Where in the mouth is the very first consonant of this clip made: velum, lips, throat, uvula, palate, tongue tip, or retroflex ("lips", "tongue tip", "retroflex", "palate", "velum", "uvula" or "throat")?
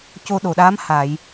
palate